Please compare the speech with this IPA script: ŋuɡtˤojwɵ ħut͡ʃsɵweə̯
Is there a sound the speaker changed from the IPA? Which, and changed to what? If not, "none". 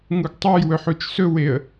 none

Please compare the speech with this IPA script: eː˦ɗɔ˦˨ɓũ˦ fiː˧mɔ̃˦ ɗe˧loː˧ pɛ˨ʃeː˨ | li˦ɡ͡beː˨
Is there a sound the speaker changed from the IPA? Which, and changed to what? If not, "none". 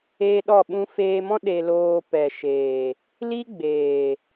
iː˧ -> eː˧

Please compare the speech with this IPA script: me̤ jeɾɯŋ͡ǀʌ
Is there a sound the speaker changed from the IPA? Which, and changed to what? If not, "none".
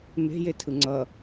ɾ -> tʰ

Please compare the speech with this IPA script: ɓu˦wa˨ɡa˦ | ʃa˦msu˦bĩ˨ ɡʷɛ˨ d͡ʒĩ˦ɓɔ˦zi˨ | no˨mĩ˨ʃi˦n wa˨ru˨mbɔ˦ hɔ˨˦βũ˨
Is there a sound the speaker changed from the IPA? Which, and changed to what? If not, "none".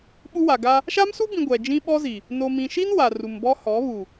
ũ˨ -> u˨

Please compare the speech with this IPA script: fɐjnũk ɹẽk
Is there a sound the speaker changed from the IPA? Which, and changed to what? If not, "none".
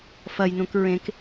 none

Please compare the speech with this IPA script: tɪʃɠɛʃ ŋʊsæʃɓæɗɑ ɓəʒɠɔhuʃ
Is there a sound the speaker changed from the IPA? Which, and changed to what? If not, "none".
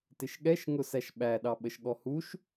ʒ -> ʃ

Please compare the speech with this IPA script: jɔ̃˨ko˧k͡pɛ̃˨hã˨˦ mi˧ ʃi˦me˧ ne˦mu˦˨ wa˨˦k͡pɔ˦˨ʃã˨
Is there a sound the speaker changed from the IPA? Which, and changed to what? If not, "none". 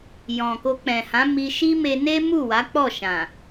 none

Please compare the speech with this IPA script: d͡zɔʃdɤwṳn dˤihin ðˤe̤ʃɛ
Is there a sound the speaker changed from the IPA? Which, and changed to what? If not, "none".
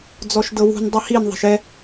none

